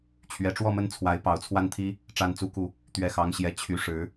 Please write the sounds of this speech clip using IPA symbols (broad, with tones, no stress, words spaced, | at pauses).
t͡ɕʰɥɛ˧˥ʈ͡ʂwɔ˥˧mə˥˩nt͡sʰwa˧˥ɪ̯ pɑ˧˥ʊ̯t͡sʰwa˥˩nt̪ʰi˥ | ʈ͡ʂa˥˩nt͡su˥ku˥˩ | t̪ɥɛ˥˩xɑ˥ŋɕjɛ˥˩ t͡ɕʰy˧˥ʂɻ̩˧˥